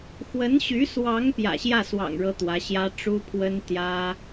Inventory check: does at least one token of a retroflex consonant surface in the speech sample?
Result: yes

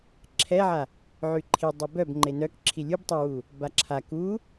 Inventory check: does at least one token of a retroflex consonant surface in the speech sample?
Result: no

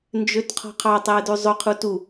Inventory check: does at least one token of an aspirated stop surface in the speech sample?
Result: yes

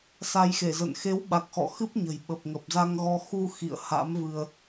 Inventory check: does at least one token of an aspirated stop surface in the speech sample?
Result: no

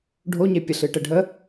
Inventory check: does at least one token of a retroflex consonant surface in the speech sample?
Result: yes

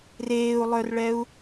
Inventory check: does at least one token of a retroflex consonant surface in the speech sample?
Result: yes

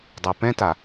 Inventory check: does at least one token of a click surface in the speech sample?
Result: no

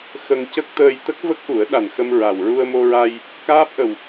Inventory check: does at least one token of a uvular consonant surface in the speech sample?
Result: no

